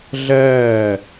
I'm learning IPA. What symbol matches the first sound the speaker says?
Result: ɮ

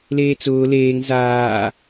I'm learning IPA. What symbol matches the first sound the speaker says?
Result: l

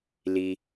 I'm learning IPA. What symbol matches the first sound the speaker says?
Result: l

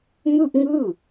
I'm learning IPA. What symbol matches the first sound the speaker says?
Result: m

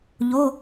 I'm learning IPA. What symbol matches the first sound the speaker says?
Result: ʎ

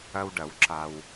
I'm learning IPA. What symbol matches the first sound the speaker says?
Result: ɐ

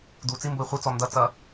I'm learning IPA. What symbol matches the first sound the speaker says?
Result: d̪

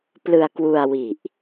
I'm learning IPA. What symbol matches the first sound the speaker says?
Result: p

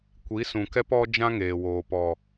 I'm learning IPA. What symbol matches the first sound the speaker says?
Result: kʷ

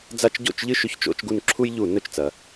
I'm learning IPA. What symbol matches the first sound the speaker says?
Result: d͡z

